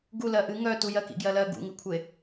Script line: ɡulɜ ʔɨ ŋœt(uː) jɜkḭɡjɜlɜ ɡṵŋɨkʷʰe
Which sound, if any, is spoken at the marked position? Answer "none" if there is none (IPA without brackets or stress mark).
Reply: u